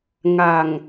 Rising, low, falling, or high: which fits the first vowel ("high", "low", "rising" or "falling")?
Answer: low